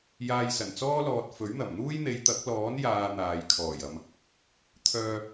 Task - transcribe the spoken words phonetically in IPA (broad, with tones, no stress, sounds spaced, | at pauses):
j aː˧ j s ɐ˨˩ n t͡s ɔː˥ l ɔː˧ t̚ f ɵ˨˥ ɥ n̪ ɐ˨˩ m n̪ uː˥ j n̪ e˨˧ j t̪ ɐ˨˥ k̚ l ɔː˨˥ n j aː˧ n̪ aː˨ j kʰ ɔː˨˩ j ɐ˨ m | t̪ʰ œː˧